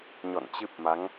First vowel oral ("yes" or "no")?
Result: yes